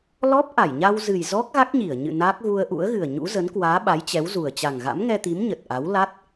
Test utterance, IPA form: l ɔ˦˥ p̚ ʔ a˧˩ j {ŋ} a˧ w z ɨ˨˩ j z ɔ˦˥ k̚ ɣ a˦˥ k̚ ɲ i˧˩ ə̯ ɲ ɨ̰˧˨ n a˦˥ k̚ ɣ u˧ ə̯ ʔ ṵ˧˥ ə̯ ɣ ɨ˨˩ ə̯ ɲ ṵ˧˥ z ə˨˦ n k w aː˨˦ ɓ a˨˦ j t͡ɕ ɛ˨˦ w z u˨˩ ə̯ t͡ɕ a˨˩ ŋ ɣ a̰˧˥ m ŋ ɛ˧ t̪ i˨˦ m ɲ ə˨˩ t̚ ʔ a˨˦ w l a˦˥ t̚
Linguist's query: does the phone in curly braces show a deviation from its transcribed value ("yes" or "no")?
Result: yes